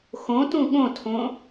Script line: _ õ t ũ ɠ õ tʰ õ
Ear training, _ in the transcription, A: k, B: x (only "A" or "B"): B